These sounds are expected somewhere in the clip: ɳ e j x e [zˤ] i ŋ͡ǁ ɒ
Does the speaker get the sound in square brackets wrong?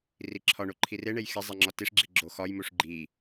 no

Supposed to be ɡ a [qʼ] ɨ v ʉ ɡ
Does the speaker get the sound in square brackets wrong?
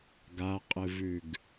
no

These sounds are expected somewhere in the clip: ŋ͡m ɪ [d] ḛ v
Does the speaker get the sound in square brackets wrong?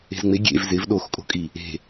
yes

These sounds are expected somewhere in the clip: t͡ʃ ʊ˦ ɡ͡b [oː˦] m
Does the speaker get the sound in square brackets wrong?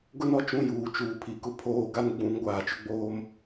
no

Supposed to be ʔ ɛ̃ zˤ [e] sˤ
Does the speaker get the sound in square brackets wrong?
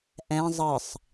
yes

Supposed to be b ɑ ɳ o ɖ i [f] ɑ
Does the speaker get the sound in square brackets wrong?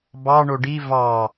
yes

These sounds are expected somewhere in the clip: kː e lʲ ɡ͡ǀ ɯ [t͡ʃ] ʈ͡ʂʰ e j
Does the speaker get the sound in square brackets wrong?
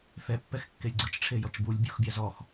no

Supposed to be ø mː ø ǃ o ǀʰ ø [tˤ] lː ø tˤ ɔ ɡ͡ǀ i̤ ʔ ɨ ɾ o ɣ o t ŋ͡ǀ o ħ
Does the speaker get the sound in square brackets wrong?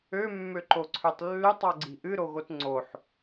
no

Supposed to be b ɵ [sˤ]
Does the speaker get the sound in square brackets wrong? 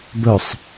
no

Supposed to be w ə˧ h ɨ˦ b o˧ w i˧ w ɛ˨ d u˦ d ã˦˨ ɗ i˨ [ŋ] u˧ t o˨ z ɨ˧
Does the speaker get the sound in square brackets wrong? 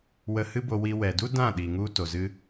no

